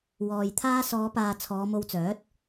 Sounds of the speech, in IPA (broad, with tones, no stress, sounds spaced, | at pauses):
w ɔː˨ j t̪ʰ aː˥ s ɔː˨˧ p aː˨ t͡sʰ ɔː˨˧ m o˧ w t͡s œː˨˥ t̚